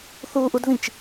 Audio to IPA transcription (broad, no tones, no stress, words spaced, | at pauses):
θuːʔudðĩt͡ʃ